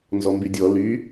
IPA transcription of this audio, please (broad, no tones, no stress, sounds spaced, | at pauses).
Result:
n z ɔ m b y dʲ ɔ l y